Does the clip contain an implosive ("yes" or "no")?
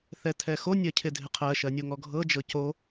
no